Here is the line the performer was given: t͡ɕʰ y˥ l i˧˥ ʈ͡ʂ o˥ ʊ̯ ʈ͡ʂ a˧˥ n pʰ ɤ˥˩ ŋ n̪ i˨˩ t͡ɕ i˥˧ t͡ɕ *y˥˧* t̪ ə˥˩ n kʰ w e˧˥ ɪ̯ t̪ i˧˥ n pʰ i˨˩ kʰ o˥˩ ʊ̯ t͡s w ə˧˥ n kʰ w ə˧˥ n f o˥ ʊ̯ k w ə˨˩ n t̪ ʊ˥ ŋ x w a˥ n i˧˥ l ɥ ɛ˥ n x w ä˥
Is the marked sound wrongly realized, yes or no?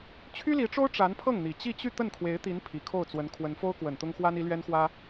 no